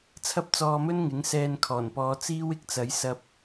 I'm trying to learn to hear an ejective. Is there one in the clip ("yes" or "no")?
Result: no